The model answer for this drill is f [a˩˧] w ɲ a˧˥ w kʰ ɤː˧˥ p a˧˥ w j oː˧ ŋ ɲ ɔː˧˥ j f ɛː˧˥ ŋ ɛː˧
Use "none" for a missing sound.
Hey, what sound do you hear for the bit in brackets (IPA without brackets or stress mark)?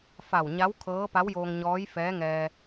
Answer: a˧˩